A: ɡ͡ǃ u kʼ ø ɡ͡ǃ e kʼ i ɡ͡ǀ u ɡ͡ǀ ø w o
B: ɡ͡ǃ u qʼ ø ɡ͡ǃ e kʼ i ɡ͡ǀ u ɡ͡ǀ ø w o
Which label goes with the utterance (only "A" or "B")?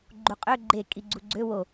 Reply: B